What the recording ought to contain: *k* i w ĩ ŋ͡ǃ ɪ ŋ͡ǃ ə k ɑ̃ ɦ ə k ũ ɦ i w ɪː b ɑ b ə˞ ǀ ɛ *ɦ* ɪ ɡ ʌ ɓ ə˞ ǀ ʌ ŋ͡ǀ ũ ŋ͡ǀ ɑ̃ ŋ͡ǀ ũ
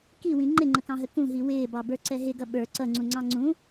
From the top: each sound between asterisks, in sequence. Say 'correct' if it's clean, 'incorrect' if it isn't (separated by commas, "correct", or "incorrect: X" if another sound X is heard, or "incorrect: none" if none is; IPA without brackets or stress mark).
correct, correct